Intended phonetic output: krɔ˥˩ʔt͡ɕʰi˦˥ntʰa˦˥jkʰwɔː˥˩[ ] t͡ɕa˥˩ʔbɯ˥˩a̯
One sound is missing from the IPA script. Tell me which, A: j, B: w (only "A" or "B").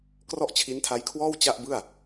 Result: B